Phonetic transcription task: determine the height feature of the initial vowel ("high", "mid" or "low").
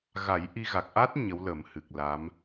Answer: low